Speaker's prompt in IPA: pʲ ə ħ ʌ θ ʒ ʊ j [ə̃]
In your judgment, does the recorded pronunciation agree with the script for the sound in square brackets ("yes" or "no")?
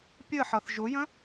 yes